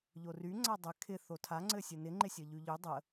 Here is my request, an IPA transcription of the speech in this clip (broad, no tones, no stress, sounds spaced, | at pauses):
ʎ o r y ŋ͡ǀ a dˤ ɘ kʰ ɪ θ o tʰ a ŋ͡ǀ ɘ sʲ ɘ n ɪ ŋ͡ǃ ɪ sʲ ə ʎ y ʎ y dˤ ə